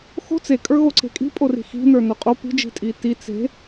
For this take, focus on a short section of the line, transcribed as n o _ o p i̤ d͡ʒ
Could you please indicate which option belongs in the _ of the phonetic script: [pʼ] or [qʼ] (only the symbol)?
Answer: qʼ